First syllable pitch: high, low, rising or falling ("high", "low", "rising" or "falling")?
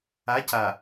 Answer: rising